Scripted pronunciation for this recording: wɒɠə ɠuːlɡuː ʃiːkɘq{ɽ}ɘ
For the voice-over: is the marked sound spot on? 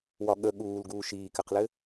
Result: no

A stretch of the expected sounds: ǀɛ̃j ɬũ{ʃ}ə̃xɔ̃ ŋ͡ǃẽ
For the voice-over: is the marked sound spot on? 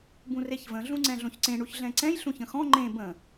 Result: no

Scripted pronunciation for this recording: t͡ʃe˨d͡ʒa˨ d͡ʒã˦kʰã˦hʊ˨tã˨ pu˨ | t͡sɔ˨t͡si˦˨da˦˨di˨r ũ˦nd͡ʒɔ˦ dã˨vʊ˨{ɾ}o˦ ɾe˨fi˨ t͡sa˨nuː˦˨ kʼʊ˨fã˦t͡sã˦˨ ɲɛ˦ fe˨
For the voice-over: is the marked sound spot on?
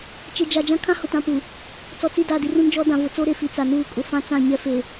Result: no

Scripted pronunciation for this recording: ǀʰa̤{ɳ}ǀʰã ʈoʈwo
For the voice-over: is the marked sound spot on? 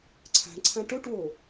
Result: yes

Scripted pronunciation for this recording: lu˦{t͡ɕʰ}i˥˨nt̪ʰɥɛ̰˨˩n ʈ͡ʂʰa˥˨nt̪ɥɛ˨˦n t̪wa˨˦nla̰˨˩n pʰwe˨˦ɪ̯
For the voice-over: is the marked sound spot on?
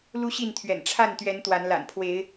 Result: no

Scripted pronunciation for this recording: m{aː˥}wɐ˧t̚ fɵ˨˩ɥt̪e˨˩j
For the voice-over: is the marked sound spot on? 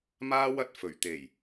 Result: yes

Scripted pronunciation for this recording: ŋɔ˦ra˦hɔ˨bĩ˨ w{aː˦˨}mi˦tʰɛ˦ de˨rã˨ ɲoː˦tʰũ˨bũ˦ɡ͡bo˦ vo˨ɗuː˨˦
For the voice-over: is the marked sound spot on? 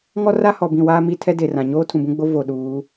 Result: no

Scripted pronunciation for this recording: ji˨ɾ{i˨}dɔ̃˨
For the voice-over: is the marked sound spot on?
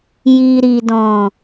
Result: yes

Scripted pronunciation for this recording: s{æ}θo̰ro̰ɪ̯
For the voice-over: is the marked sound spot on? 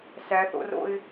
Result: yes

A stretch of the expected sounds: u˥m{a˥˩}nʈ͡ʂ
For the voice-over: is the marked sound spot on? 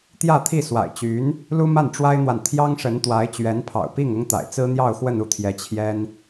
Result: yes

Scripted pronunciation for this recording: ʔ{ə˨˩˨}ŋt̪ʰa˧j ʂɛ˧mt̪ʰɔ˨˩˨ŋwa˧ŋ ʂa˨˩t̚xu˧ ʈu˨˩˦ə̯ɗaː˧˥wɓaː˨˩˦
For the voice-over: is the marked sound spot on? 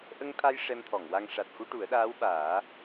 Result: no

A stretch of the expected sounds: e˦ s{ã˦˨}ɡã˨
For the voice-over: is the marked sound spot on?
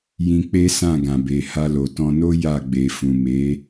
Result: yes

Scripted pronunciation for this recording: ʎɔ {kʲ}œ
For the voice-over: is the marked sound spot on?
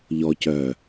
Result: no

